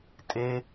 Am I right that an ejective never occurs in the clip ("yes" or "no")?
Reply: no